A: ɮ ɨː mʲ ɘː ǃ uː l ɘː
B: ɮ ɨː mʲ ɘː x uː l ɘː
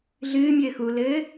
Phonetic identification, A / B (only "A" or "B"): B